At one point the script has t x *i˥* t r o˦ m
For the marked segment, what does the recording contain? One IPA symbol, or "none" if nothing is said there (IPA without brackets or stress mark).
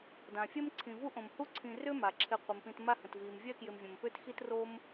i˦